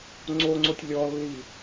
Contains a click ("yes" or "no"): yes